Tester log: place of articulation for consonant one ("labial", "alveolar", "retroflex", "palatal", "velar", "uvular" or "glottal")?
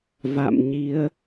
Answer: labial